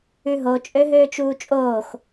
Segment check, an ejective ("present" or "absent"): present